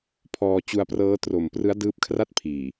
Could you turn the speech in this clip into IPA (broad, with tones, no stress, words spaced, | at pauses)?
pʰɔː˧ t͡ɕu˧a̯prɤː˦˥ tro˨˩mprɯ˦˥a̯ dɯː˦˥p̚kʰra˥˩t̚pʰiː˨˩